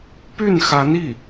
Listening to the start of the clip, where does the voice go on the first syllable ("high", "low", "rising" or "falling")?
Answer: falling